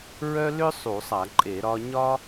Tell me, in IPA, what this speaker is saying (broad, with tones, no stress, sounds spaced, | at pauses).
ɹ œ˥ l ʏ˥ sˤ u˧˩˧ sˤ a˧˩˧ ǃʼ e˧˩˧ ɾ ɒ˥ ɲ ɒ˥